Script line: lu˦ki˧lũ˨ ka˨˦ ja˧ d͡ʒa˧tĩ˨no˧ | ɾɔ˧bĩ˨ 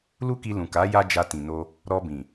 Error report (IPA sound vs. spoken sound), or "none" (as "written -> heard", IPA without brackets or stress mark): none